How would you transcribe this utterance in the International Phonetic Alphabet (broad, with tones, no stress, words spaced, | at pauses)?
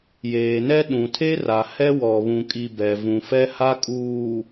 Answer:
jeː˨nɛ˦ ɗũ˨tʰe˦ra˨ hɛ˦wɔ˨βũ˨kʼi˨ bɛ˨ vũ˨fɛ˦ha˦ kʼuː˨